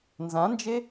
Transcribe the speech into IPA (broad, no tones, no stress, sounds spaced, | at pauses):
n z ã n d͡ʒ e